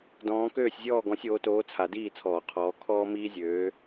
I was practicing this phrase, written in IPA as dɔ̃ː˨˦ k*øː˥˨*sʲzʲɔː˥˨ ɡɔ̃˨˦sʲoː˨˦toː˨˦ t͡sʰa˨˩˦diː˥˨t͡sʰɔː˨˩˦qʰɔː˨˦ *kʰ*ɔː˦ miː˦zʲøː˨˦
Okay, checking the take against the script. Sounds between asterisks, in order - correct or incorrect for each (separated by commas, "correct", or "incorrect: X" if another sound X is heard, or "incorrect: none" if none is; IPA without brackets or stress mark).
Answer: correct, correct